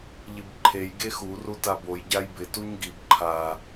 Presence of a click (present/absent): present